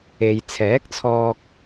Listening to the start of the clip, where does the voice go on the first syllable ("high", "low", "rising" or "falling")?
low